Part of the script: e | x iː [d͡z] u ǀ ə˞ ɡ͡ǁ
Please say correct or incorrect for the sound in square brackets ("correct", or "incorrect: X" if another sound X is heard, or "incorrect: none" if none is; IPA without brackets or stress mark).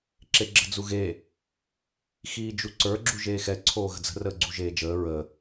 incorrect: d͡ʒ